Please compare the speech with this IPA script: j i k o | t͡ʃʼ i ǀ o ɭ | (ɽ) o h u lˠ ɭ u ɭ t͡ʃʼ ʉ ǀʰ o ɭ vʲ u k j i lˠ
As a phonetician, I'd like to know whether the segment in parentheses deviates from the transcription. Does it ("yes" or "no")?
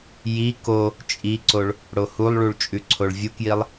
no